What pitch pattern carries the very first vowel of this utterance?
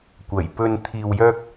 low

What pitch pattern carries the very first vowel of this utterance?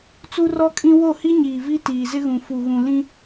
high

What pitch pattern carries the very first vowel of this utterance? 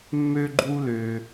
high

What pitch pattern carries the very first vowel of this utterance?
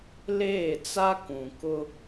falling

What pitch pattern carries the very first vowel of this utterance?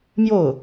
falling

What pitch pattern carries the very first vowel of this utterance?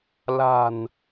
low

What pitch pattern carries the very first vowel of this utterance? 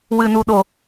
low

